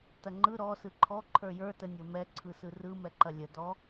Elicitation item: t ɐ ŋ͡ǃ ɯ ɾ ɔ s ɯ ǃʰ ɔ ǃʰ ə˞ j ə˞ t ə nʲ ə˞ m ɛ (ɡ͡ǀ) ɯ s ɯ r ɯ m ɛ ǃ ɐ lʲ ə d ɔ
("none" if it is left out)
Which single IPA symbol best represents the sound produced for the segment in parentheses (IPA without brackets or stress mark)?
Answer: ǀʰ